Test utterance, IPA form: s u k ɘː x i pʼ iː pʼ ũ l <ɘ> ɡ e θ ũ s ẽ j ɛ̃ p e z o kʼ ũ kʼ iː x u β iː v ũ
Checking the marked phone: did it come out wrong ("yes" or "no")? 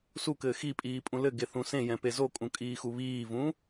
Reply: no